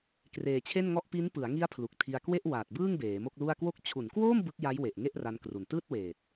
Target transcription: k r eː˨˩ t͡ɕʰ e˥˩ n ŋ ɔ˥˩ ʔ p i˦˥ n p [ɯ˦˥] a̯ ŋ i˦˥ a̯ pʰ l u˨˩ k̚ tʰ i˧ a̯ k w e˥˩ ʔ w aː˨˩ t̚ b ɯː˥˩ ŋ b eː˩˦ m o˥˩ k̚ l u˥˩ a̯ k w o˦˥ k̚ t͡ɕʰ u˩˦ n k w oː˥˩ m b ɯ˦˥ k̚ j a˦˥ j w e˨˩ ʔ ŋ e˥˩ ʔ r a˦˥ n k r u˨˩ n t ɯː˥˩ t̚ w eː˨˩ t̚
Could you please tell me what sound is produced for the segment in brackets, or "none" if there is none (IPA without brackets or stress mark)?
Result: ɯ˩˦